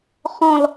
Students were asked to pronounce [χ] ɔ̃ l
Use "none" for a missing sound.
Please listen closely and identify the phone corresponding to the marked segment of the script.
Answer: χ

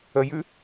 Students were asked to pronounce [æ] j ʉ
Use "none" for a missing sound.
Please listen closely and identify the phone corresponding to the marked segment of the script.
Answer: ə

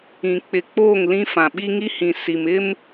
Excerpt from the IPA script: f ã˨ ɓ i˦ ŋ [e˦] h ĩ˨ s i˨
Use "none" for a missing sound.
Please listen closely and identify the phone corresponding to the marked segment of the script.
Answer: i˦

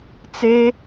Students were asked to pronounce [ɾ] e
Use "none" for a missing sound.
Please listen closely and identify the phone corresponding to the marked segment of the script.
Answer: t͡s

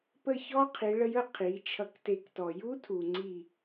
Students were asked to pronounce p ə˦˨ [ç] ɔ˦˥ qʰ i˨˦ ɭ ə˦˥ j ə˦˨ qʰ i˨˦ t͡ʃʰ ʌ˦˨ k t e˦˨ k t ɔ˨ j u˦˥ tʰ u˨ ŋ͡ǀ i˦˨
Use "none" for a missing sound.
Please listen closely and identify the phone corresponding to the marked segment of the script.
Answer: ç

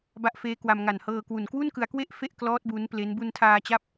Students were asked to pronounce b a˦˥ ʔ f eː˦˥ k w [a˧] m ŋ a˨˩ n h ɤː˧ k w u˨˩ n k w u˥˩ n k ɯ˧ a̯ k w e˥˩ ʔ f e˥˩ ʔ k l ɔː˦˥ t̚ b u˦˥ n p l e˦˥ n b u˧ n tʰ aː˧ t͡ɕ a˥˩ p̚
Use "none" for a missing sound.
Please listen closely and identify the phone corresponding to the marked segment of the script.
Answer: a˧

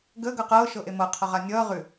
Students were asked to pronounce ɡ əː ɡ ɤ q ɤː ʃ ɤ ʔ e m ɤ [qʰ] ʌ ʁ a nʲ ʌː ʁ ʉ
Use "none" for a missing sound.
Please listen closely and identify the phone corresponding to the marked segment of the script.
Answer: qʰ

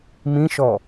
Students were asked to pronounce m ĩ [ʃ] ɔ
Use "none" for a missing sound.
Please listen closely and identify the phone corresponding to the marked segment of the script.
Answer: ʃ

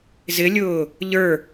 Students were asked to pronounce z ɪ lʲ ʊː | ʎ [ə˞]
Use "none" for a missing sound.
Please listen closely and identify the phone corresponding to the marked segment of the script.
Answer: ə˞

